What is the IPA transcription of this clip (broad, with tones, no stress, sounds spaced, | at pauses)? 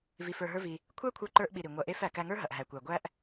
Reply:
v i˧ f ə˞˧ ɦ ə˞˦ v i˧ | kʷʰ æ˦ kʷʰ ə˞˧ ǃ ə˞˧ ʔ ɓ i˨ ɾ i˨ ŋʷ ɐ˧ ʔ e˦ f æ˨ k æ˧ ŋ ə˞˦ ɦ ɐ˨ ʔ ɦ æ˨ kʷ æ˨ ɡʷ æ˦ ʔ